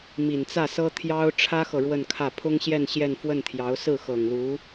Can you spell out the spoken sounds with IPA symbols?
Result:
mi˨˩nt͡sä˥˩sɤ˥ t̪ʰjɑ˥ʊ̯ ʈ͡ʂʰä˥xɤ˨ ɻwə˥˧nkʰä˥˩ pʰʊ˥ŋɕjɛ˥˧n ɕjɛ˥˧nfwə˥˩nt̪ʰjɑ˧˥ʊ̯ sɹ̩˥˩xɤ˨˩ŋlu˧˥

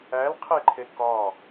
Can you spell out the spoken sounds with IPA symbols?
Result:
ælqʰeǃʰe kɒ

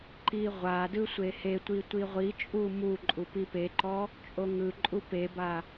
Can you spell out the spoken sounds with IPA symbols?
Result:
ǃiʁʷadɯ sʷehetʷi tʷiʁʷit͡ʃʼu mu ǃʼupipeǃɔ | t͡ʃʼoŋɯǃʼu peba

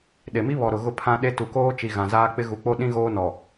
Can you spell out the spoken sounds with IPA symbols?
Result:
ɗe˨mi˦βɔ˨ɾʊ˨ ɣʊ˦pʰã˦ ɗe˦ tu˨koː˦t͡ʃi˨ ɣã˨zaː˦k͡pɪ˦ ɣu˨k͡po˦ɗĩ˦ ɣoː˦nɔ˨

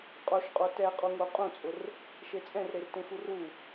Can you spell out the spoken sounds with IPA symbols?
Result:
qʼoʃqʼo tɛ qʼuŋo qʼũt͡sʼʊr | ʃet͡sʼɛ̃rɾer tẽxuru

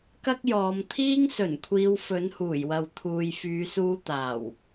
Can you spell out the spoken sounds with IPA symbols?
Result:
kɐ˥k̚jɔː˨˧m t̪ʰiː˥ŋ sɵ˨˩nkʷʰiː˨˧w fɵ˨˥nhuː˨˩jwɐ˨wt̪ʰuː˨j fyː˨˧suː˧t̪aː˨˩w

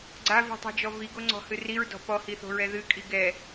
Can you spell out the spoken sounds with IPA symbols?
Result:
ɡ͡ǀavi̤tˤɛ̤d͡ʒɔ viɡoŋ͡ǀɔ̤hɨ riɹdɔ̤ pɔhiθo̤ɹɛ ðɨkʼi ɡɛ

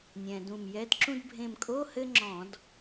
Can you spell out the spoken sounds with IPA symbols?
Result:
nʲɛ̃˩ dũ˧˩mjɛ˧˥˧dǁũ˥d bʱẽ˧˩mkʼo˧˥˧ hɘ˥ŋ͡ǁɔ̃˧˩˧d

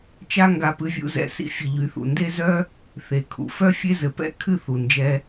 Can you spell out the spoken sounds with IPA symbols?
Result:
t͡ʃa˦ŋɡa˧pɨ˧vʲṵ˧ zɛ̰˧ sḭ˧fʲɨ˨ʎy˨˦ θṵ˨nde˦zœ˦ | θe˨kʰṵ˨ fœ˦fʲe˦zɘ˨pɛ̰˦ kʰɨ˦˨ θu˨nd͡ʒɛ˧

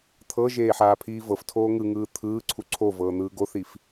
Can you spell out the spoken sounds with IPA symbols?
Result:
t̪ʰɤʒeː ħaːpʰiːvɤftʰoː ŋɯŋɯː t̪ʰɯːǀʰu ǀʰovɤː n̪ɯːɡoθif

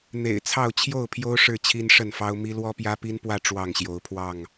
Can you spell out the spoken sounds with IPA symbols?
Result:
n̪ḛ˨˩ɪ̯ t͡sʰɑ˥˨ʊ̯ t͡ɕʰjo˥˨ʊ̯pʰjo˦ʊ̯ ʂɻ̩˥˨t͡ɕʰi˦nʂə˥˨nfɑ˦ʊ̯ mi˦ lwɔ˦pjä˦pi˦npwä˥˨ ʈ͡ʂwɑ˥˨ŋɕjo˨˦ʊ̯pʰwɑ˥˨ŋ

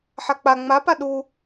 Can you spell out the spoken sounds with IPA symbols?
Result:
ħak͡pa ŋ͡mapa ɗu

